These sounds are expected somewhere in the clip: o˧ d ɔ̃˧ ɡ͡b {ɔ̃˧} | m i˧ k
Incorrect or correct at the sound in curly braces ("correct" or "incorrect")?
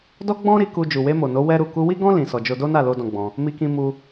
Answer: correct